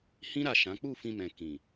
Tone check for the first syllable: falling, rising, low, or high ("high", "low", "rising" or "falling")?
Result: high